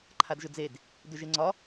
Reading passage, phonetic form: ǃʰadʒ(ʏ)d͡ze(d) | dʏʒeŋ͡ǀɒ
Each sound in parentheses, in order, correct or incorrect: correct, correct

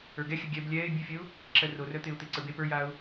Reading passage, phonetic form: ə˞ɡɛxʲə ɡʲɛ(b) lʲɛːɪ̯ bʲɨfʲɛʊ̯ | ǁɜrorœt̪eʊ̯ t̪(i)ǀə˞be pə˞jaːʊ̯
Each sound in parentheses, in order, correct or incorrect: correct, incorrect: e

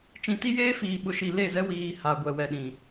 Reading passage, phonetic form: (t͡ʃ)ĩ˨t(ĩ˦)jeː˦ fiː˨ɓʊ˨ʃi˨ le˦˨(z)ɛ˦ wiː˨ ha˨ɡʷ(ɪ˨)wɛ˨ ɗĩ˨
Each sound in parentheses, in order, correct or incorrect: correct, incorrect: i˦, correct, incorrect: ɛ˨

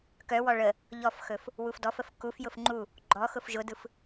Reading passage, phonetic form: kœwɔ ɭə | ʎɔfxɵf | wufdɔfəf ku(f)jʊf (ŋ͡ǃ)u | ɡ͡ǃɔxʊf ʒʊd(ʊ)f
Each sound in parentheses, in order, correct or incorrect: correct, correct, incorrect: ɯ

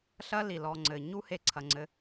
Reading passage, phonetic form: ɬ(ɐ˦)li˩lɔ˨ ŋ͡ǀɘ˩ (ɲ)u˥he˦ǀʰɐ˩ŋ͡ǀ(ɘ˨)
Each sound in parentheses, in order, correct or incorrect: incorrect: ɐ˥, correct, correct

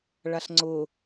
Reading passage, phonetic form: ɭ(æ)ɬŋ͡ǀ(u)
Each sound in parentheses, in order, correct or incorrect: incorrect: a, incorrect: ʊ

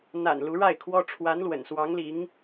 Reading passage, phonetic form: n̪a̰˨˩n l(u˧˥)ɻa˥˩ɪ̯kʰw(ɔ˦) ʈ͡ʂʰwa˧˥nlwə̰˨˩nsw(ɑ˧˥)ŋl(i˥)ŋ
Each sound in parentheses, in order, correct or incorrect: correct, incorrect: ɔ˥, correct, incorrect: i˧˥

